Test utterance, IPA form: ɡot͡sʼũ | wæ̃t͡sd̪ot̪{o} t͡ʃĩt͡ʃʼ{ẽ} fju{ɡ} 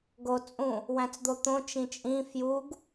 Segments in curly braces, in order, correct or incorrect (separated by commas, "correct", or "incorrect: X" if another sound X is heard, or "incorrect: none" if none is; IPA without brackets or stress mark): incorrect: õ, incorrect: ĩ, correct